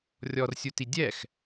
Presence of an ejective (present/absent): absent